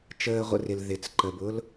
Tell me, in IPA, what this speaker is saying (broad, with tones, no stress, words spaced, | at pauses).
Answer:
t͡ʃəː˨ʁʷə̰˨ rɪ˨l ðɪ˨t͡sǃə˨bʊ˦l